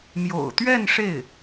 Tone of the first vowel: low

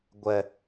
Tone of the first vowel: high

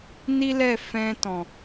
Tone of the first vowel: high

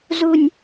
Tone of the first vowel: high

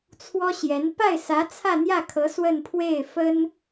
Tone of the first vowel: high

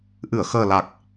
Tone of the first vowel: low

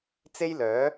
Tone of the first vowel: high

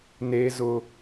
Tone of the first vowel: high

